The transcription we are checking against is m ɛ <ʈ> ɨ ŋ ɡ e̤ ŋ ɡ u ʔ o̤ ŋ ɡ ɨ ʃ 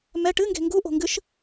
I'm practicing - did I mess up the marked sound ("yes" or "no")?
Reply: no